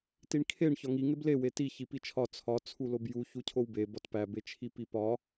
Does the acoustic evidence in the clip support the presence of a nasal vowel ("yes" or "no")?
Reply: no